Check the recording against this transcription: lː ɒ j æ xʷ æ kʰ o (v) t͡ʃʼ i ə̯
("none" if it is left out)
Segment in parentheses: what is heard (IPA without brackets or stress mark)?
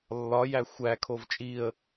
v